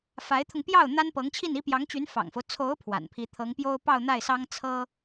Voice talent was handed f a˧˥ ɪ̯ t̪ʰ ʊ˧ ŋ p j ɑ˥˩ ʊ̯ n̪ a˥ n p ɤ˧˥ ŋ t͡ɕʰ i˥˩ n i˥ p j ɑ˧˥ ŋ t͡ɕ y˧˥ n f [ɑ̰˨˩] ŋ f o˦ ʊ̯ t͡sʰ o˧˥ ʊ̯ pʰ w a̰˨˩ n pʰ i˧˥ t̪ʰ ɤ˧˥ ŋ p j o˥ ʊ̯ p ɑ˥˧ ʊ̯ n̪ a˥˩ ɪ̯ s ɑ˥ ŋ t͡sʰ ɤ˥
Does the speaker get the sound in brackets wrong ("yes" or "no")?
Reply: no